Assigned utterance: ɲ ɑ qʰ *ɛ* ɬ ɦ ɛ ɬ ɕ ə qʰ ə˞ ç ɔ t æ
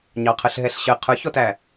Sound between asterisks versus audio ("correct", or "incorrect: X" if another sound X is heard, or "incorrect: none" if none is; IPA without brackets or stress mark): incorrect: ə